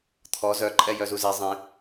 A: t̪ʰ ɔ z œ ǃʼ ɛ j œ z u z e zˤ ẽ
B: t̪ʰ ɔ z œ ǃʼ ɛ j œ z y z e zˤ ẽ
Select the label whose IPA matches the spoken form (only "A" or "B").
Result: A